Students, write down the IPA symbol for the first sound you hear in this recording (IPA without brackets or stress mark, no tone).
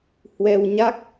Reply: h